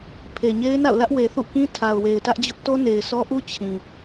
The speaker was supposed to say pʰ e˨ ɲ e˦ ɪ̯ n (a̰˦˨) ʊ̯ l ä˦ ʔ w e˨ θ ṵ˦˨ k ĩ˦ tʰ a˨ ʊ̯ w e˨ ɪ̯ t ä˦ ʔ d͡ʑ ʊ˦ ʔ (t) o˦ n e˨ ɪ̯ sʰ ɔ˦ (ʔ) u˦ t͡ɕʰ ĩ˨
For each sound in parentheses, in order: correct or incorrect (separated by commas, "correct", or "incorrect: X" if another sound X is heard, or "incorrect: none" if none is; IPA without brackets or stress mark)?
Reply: correct, correct, correct